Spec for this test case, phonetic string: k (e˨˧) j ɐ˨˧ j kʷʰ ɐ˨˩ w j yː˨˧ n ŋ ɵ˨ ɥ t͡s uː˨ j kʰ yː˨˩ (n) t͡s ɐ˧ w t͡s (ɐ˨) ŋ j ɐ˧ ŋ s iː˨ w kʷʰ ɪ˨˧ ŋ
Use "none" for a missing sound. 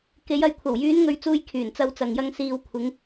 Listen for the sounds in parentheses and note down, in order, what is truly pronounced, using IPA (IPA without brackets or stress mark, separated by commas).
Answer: e˨˧, n, ɐ˨